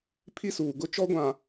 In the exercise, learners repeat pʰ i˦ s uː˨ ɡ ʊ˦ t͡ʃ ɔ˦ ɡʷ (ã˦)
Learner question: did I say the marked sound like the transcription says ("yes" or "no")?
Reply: no